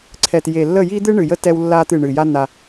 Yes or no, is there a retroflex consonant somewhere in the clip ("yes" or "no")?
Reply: yes